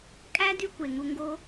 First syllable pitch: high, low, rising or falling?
high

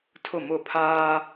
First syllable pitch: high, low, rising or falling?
falling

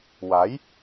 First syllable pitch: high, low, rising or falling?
rising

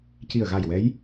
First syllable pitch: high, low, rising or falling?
low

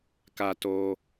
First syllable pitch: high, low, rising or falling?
high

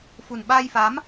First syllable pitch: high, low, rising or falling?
low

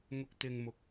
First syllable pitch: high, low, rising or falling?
high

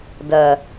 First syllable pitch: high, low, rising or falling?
low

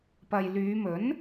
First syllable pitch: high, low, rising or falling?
low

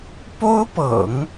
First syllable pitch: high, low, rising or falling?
high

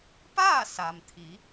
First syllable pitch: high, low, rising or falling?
falling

